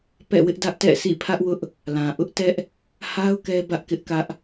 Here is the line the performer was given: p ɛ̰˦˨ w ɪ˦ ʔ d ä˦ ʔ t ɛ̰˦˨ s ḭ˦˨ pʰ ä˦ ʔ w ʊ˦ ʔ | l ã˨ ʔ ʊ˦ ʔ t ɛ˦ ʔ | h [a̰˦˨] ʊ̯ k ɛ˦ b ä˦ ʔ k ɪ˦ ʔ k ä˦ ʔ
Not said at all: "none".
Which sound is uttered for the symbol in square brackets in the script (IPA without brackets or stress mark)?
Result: a˦